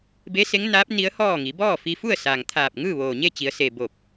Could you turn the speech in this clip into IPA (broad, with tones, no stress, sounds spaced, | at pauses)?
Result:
b e˧˥ s e˧˥ ŋ n aː˧˥ p̚ n i˧˥ ə̯ h ɔː˥˨ ŋ i˩˧ b ɔː˥˨ f i˧ f u˥˨ ə̯ s aː˩ ŋ t̪ʰ aː˧˩ p̚ ŋ ɯː˥˨ ʋ oː˩ ɲ e˥˨ t͡ɕ i˩˧ ə̯ s e˩ b o˧˩ p̚